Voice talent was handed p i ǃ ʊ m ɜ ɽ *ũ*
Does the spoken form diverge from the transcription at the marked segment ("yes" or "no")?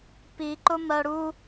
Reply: yes